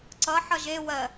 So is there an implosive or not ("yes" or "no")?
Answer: no